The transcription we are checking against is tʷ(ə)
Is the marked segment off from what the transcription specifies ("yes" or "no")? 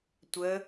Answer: no